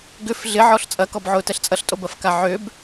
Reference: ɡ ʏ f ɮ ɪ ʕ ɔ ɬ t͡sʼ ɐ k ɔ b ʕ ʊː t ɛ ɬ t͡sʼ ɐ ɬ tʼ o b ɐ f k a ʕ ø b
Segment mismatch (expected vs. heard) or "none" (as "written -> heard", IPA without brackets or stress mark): none